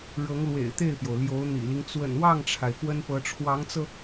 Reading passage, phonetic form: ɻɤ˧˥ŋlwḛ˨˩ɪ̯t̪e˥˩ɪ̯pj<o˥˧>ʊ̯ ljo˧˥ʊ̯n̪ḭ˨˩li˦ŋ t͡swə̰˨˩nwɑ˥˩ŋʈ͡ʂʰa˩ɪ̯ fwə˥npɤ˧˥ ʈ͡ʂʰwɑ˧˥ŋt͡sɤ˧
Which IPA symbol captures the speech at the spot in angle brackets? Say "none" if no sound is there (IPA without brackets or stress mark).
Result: o˩